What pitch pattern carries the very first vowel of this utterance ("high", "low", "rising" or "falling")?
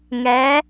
rising